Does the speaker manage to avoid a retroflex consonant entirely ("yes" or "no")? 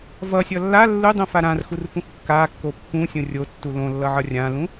yes